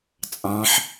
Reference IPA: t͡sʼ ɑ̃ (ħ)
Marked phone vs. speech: correct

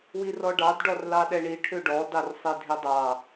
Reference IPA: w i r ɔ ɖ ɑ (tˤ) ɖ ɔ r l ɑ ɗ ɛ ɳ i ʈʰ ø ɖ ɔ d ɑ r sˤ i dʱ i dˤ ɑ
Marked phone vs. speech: incorrect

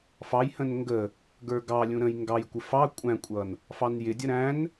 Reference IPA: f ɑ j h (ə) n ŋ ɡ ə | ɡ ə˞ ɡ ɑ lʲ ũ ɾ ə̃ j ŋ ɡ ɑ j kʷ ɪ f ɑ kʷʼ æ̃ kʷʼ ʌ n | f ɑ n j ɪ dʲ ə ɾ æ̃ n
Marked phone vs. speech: incorrect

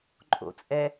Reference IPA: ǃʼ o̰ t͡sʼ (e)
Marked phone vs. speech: incorrect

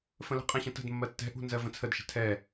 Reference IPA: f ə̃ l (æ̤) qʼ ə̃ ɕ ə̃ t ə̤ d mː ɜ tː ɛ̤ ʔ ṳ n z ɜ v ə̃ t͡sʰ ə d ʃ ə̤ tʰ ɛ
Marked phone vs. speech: incorrect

